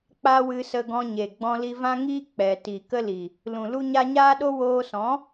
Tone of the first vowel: high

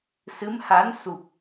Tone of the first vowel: rising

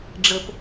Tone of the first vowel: low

